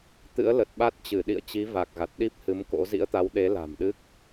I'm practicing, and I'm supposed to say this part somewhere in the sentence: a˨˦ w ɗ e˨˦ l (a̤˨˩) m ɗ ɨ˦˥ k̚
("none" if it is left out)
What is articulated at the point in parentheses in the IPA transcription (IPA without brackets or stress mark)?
a̤˨˩